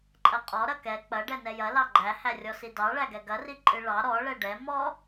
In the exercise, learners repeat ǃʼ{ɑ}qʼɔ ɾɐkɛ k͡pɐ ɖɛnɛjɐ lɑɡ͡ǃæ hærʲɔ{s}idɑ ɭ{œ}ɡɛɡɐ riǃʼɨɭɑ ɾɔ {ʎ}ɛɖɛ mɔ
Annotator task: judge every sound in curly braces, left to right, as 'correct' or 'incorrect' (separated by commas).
incorrect, correct, incorrect, incorrect